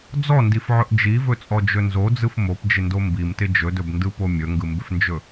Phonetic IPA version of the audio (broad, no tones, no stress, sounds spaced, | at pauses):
d͡z ɔ n d i f ʕ ɵ ʔ d͡ʒ i v ɵ t͡sʼ ɔ d͡ʒ ɵ n z o d͡z ɯ f m o p d͡ʒ ɪ n d o m b i m t ɪ d͡ʒ ɵ d ɵ b n d ɯ p o mʲ ɵ ŋ ɡ ɯ m b ɪ f n d͡ʒ ɵ